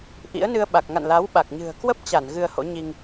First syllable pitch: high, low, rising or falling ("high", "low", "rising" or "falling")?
rising